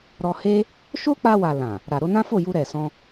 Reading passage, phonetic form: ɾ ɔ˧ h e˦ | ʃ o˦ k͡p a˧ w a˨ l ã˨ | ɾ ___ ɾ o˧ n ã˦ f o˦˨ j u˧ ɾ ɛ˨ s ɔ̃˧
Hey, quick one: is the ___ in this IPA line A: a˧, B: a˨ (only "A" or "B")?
B